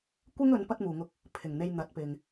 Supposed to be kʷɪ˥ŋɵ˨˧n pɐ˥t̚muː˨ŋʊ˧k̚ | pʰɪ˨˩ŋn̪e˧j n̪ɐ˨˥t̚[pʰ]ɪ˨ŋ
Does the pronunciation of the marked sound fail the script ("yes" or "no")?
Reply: yes